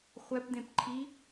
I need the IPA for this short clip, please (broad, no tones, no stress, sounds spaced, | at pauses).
χʷ ɛ p d ẽ p ǃʰ i